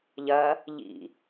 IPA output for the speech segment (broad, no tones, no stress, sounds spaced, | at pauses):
ʎ ɐ | ʎ ḭ